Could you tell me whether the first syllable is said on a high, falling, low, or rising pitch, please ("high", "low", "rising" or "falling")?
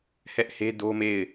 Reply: high